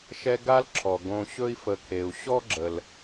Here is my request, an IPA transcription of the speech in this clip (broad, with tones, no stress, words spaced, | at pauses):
ʃɛ˦ɡa˥l ǁʰɔ˩ ɡõ˨ ɕɵ˥i̯fə˨kʰe˩u̯ ɕɔ˥ɡ͡ǁə˩l